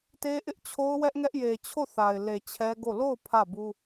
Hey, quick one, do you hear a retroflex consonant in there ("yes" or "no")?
no